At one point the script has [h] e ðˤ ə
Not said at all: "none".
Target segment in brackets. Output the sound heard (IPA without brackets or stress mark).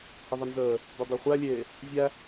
h